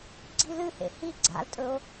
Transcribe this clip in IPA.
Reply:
ɡ͡ǀ i l ɨ h ḛ h i ɡ͡ǀ a̰ l tʼ ɵ o̯

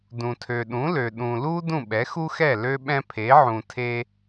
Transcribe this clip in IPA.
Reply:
d ũ˩ tʰ ø˩ ɗ ũ˩˥ l ø˩ ɗ ũ˩ l u˥ d ũ˥˩ ɓ ɛ˩˥ x u˥ x ɛ˥˩ l ø˧ ɓ ɛ̃˧ pʰ e˩˥ ʕ ũ˩ tʰ e˧

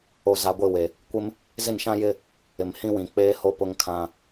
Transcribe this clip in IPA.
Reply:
o˨ z a˨ ɡʷ ɪ˦˨ w e˨ | kʷ ɪ˦ m | z ɪ˦˨ n ʃ ã˦ j ɪ˦ | ɪ˨ m h ĩ˦ w ĩ˨ k͡p eː˦ h o˦ p ʊ˦ ŋ kʰ ã˦

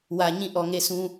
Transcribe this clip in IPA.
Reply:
w ä˨ ɲ ĩ˦˨ ʔ ɔ˨ ŋ e˦˨ s ũ˦

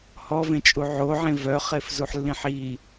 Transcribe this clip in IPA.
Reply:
h ɔ v ẽ t͡ʃʼ u ʕ o ʕ ẽ v œ χ e f z u ħ lː ĩ ħ i

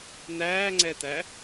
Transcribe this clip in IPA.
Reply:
n̪ æː ŋ͡ǀ ɛ t̪ æ

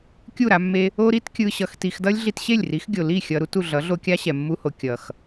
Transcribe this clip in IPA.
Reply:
kʲ u˦˨ ɾ a˧ mː e˧ | o˦ ɾ i˦ t kʲ ɯ˧ ɕ ʌ˧ x t i˧ x d ʌ˦ lʲ ɮ i˧ t ɕ e˦˨ lʲ r i˨˦ x ɡʲ o˨ l i˦˨ xʲ ʌ˧ ɾ u˦ t u˨ ɮ ʌ˨˦ ɮ o˧ kʲ a˦ ɕ ɛ˨ mː u˧ h o˨ kʲ ʌ˨ x

